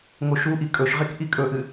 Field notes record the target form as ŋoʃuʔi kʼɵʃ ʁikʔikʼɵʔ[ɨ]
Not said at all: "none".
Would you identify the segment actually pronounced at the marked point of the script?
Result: ɨ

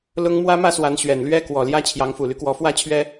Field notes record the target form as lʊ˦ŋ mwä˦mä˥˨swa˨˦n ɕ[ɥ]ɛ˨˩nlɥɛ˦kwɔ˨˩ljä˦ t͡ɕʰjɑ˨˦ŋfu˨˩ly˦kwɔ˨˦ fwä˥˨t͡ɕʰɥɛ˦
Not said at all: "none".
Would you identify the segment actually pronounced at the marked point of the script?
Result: ɥ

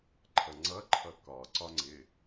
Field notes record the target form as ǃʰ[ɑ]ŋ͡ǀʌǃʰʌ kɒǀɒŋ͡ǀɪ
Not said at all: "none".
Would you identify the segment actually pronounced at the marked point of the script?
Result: ʌ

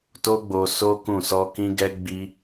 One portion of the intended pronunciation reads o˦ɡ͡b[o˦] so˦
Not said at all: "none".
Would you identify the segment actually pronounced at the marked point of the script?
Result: o˧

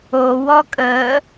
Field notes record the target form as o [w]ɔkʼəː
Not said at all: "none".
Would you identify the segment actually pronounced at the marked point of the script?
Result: w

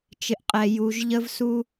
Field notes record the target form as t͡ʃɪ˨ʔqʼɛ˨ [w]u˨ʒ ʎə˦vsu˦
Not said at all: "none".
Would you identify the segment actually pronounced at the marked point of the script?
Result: j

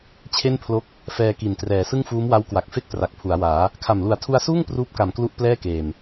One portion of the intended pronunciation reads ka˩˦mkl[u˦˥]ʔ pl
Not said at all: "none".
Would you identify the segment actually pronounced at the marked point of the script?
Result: u˦˥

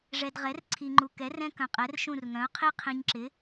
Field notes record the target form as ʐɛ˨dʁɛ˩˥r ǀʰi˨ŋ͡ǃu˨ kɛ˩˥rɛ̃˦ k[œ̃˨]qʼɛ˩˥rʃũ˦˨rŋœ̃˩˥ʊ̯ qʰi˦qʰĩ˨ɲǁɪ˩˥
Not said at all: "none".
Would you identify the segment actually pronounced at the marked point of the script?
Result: œ̃˨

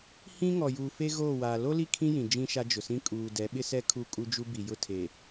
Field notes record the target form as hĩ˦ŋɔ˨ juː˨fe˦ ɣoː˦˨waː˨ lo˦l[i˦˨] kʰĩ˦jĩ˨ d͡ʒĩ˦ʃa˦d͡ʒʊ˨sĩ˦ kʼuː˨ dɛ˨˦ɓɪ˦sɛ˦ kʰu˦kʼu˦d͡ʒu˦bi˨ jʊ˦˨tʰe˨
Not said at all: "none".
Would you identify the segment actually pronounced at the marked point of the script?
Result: i˦˨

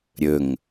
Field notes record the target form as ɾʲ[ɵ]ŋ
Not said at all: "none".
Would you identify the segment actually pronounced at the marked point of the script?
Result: ɵ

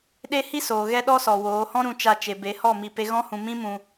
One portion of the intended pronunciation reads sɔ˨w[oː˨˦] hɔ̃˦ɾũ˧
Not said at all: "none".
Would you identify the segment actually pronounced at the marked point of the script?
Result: oː˨˦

